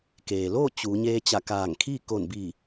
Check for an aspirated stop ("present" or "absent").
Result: present